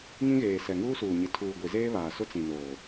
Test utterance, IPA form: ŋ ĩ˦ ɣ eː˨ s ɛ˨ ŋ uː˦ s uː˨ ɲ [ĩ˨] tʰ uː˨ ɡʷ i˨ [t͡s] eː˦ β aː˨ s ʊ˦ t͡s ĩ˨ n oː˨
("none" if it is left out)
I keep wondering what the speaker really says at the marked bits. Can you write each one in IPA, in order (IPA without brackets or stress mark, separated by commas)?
i˨, z